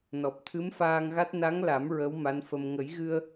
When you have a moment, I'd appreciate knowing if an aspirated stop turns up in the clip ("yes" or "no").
yes